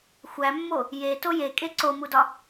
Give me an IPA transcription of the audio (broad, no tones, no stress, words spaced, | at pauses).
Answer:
xʷæmːo | jeto jekʼe ǀomudɒ